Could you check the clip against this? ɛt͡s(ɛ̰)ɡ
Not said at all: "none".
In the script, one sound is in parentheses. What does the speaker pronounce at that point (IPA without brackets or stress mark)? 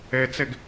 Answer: ɛ